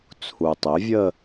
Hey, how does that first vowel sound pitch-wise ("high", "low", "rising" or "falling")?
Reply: low